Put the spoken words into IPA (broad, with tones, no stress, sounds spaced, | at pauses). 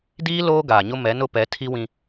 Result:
d iː˦ l oː˦ ɡ aː˨ ɲ ʊ˦ m ɛ˨˦ n ʊ˦ p ɛ˨˦ tʰ i˦ w ĩ˦